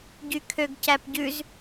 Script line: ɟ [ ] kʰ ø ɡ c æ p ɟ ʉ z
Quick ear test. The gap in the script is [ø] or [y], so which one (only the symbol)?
y